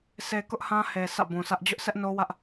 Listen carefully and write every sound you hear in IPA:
sʰ e˨ k ʊ˦ ʔ h ã˦ h e˨ s ä̰˦˨ b ũ˨ s ä˦ ʔ d͡ʑ ʊ˦ ʔ sʰ ɛ˦ ʔ n o˦ w ä˦ ʔ

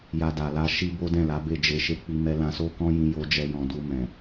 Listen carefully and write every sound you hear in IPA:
j a˧ d a˨ l a˧ ʃ i˦ b o˦ d ɛ̃˦˨ l a˨˦ b e˦˨ d͡ʒ e˧ ʃ e˧ k͡p i˧ m ɛ˧ l ã˧ s o˦ k ɔ̃˦ j ĩ˧ j o˧ d͡ʒ ɛ˧ j ɔ̃˨ d u˧ m ɛ̃˨

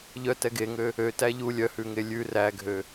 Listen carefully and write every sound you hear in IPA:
ʎ œ t ɛ ɡ e ŋ ø | ø t æ ʎ u lʲ œ h ʉ ŋ e lʲ ʉ r æ ɡʱ ø

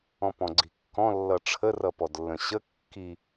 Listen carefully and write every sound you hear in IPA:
ɔ̃ p ɔ̃ ɡ͡ǀ i̤ kː ɔ̃ lː ʌ ʈ͡ʂʰ ə r ʌ p ɔ d lː ə̃ ɕ ə kː i

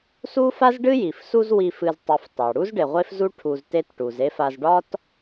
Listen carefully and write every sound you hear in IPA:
s u˥ f a˥ z ɖ ɨ˥ j i˩ f s u˦ z w i˨ f ɨ˨ z tˤ ɨ˨ f tˤ ɑ˩ ɽ u˥ z ɖ e˩ ʁʷ e˦ f z u˦ ʈʰ u˨ z t e˦ t ʈ u˩ z e˦ f a˨ z ɖ ɒ˥ t

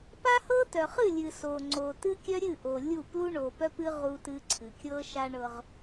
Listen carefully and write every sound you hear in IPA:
p a˦ h ɤ˦ t œ˨ χ ɨ˦˨ lʲ ɨ˨ s o˨ ŋ͡ǀ o˨ t ɨ˦ kʲ œ˦ ɾʲ ɨ˦˨ ʔ o˨ lʲ u˦˨ p l u˦ ɳ o˨ p œ˦ p ɨ˦ ʁ u˦ t ɨ˦ ǀʰ ɨ˨ kʲ ɤ˦ ʃ a˦ ɳ ɤ˦ ʁ

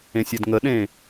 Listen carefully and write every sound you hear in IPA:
ẽ sʲ ɛ d ŋ ə ɗ ẽ

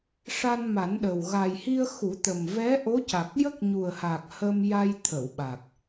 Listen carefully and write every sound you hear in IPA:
ʂ a˧ n m a˨˩˦ n ɗ ə˨˩ w ɣ a˨˩ j h i˧ ə̯ x u˨˩˦ t̪ ə˨˩ m v ɛ˧˥ ʔ o˧˥ c a˨˩ k̚ j ə˦˥ k̚ ɲ u˨˩ ə̯ h a˨˩ k̚ h ə˧ m j a˧ j t̪ʰ ə˨˩˨ w ɓ a˨˩ k̚

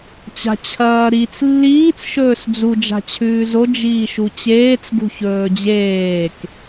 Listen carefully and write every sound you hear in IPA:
t͡ɕ a̤ t͡ɕʰ ɐː ɾ i t͡s lː iː t͡s ʃ ɵː s d͡z u d͡ʒ a̤ t͡ɕʰ ʉː z o d͡ʒ iː ʃ u t͡ɕ eː t͡s ɡ ṳ ç ɵː d͡ʑ eː k

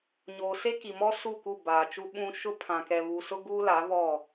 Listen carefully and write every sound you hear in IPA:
ɲ oː˨ s e˦ k i˨ m ɔ˦ s u˦˨ k u˦˨ b aː˨ t͡ʃ u˦ ɓ ũ˦ ʃ ʊ˦ pʰ ã˨ k ɛ˨ β u˨ s ʊ˦ ɡ uː˦ l a˨˦ β ɔ˦˨

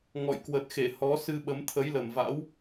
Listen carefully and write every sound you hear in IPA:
ŋ ɔ̰˧˨ j k w ə˨˩ t̚ x e˧˩ h ɔ˨˦ s ɨ˧ ɓ ə˨˦ m t̪ʰ ə˨˦ j l ə˨˩ m v a̰˧˥ w

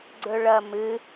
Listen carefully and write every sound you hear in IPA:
ɡ͡ǀ ɵ ɭ ɐ m ɨ

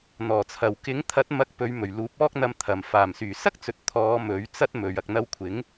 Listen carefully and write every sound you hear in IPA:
n̪ ɔː˨˩ t͡sʰ ɐ˨ w k ɪ˨˥ ŋ t̪ʰ ɐ˨˥ t̚ m ɐ˧ k̚ p ɵ˨˧ ɥ m ɵ˨˩ ɥ l uː˨˥ p̚ ɔː˥ k̚ n̪ ɐ˧ m t̪ʰ ɐ˨ m f aː˨˩ m s yː˨˩ s ɐ˥ k̚ t͡s ɵ˨ t̚ t̪ʰ ɔː˨˧ m ɵ˨˥ ɥ t͡s ɐ˥ t̚ m ɵ˨ ɥ ɐ˨ k̚ n̪ ɐ˧ w kʷʰ ɪ˨˥ ŋ

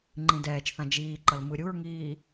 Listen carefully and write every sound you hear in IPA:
ŋ͡ǃ ĩ d ɛː t͡ʃ θ ã d͡ʒ iː ǃ ʌ l m ɯ ɾʲ u ɹ ŋ iː

